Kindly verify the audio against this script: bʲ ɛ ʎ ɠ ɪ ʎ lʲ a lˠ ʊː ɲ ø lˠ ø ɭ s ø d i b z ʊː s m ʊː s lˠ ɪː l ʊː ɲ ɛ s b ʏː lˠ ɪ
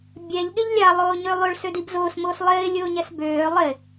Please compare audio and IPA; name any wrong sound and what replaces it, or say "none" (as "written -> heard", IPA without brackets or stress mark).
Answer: l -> lʲ